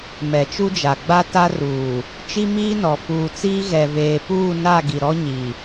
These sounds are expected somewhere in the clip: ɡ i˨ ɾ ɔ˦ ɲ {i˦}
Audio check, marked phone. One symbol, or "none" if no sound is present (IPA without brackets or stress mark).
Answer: i˨